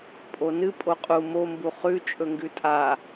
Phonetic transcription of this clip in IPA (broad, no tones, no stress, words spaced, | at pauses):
pʼonɨ pʼoqʼu mombu χʉ t͡ʃʼɵŋɡʉtʼa